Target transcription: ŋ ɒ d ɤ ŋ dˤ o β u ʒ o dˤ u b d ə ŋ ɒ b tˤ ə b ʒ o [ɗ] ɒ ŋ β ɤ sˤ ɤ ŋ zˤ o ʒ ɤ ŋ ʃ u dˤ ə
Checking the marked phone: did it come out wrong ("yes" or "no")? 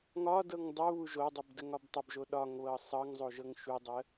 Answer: no